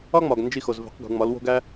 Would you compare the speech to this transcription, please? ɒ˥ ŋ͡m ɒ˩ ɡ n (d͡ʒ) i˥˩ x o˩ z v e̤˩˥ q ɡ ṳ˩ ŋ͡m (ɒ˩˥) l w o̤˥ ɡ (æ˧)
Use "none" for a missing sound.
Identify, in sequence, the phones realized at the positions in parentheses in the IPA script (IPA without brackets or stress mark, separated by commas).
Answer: d͡ʒ, ɒ˩˥, æ˥